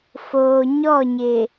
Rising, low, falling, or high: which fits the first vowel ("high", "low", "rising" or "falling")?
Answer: low